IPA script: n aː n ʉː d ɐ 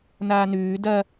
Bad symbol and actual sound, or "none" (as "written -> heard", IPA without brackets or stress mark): none